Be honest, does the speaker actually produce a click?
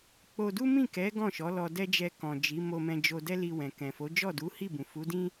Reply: no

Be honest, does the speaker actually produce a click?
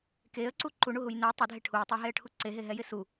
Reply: yes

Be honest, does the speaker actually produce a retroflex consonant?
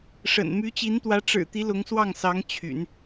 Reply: yes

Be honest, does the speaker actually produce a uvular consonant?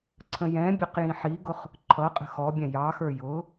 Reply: yes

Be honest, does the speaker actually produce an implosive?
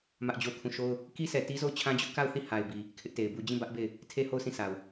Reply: no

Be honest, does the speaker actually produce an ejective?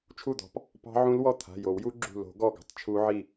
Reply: no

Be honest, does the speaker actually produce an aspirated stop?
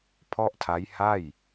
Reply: yes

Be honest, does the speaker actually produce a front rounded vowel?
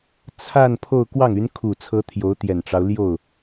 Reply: yes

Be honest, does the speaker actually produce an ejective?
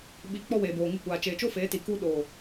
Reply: no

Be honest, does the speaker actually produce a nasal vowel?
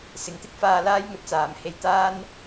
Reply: no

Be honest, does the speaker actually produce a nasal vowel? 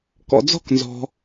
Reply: no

